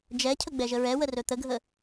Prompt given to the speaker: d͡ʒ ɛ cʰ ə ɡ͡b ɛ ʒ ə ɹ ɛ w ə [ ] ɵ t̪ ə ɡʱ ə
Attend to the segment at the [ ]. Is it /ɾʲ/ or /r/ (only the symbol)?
r